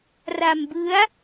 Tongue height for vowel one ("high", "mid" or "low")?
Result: low